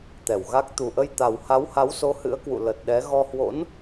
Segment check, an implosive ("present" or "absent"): present